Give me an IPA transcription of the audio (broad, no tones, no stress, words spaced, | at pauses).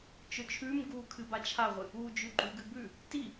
t͡ʃɵt͡ʃʰʉmɡuː kʰɨbat͡ʃʰaʁʷɨ | uːd͡ʒʉɡ͡ǃʉɡɨ bʉ | ti